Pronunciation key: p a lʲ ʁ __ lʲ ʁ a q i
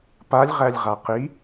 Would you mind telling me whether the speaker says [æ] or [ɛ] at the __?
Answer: æ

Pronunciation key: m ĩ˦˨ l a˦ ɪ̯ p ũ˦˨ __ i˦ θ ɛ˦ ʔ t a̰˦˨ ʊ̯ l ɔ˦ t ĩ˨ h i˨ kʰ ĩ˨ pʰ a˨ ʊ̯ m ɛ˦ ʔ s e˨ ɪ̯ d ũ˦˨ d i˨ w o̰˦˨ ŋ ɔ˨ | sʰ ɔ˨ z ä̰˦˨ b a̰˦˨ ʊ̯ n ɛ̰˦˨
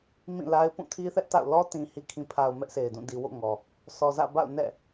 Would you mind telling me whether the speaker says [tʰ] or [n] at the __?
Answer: tʰ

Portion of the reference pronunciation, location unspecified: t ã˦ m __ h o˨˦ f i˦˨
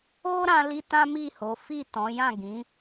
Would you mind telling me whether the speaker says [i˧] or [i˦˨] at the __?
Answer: i˦˨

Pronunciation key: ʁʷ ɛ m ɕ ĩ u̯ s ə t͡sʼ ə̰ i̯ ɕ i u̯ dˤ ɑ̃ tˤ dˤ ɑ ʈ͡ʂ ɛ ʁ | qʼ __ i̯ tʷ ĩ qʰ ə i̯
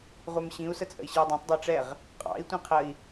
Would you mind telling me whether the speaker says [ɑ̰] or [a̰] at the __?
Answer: ɑ̰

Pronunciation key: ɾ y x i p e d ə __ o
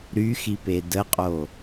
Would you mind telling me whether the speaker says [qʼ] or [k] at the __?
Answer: qʼ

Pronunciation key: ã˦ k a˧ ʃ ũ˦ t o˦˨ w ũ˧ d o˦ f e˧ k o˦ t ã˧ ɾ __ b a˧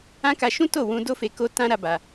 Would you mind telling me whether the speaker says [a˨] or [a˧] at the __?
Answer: a˧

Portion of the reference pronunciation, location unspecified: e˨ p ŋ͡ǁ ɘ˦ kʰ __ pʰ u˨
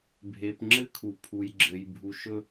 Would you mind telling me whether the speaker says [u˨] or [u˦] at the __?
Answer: u˨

